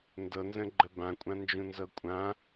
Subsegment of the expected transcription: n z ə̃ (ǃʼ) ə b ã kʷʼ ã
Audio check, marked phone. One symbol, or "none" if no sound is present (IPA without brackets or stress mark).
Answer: ɡ͡ǃ